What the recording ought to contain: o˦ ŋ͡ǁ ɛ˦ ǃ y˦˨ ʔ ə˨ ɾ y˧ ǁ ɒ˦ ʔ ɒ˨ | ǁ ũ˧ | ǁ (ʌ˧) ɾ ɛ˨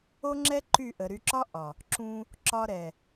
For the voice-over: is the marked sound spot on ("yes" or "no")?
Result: no